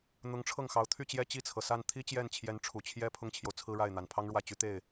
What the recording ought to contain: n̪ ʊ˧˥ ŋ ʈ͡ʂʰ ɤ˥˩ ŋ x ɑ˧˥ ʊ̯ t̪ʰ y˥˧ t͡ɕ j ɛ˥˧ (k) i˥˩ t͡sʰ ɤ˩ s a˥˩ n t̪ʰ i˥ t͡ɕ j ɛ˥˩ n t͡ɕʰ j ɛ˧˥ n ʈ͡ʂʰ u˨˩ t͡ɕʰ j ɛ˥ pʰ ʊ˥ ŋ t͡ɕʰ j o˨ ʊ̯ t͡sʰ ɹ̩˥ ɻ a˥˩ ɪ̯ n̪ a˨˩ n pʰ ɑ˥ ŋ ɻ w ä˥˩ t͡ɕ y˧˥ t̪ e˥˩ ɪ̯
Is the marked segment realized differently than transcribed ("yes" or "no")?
yes